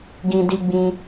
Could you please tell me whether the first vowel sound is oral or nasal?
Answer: nasal